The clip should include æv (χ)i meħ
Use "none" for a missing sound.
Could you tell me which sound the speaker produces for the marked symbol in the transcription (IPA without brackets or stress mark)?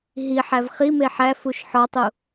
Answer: χ